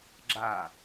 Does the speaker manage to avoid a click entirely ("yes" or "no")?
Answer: no